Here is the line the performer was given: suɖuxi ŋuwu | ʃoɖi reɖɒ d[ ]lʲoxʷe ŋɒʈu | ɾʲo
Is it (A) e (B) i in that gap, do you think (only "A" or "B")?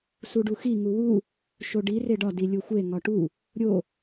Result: B